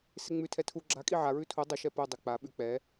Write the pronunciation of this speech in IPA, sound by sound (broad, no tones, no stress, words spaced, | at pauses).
seŋ͡mʉ tʰɛtʰu ɡ͡ǁa kʼiʕa ɹʉtʰu dˤə ʃɛpu dˤik͡pa ɓʉk͡pɛ